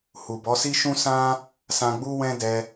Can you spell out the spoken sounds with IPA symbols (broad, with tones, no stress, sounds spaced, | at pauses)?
h u˨ b ɔ˨˦ s i˦ ʃ ũ˦ s ã˦ | s ã˧ ɡ͡b u˦ w ɛ̃˦ d ɛ˧